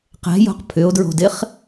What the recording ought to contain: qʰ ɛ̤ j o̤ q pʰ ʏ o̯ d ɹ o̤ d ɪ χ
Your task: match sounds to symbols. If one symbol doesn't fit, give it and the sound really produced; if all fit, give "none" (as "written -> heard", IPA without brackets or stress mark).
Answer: qʰ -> q